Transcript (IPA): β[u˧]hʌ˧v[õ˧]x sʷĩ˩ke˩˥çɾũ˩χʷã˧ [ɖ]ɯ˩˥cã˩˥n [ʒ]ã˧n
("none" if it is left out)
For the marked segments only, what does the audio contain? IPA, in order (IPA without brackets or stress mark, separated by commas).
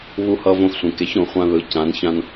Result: u˧, õ˧, ð, ç